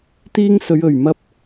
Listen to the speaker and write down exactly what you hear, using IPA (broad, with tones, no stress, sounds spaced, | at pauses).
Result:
t̪ iː˥ ŋ s ɵ˨˧ ɥ ɵ˨˩ ɥ m ɐ˥ p̚